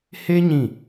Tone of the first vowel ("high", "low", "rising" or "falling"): high